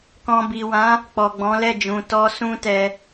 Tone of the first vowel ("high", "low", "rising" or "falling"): low